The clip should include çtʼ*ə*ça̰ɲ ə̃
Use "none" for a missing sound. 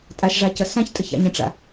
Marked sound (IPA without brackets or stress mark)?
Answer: ə